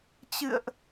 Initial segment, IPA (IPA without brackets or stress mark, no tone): t͡ɕ